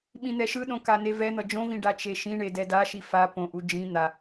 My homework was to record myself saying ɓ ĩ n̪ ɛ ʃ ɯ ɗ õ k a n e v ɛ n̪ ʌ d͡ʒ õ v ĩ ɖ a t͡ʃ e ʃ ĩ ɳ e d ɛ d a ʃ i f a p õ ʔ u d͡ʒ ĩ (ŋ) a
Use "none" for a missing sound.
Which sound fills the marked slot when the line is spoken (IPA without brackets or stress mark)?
n̪